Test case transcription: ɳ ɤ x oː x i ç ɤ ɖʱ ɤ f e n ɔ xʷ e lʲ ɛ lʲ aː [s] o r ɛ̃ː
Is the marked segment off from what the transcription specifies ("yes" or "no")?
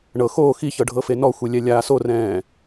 no